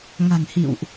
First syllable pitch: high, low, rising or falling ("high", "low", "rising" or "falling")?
low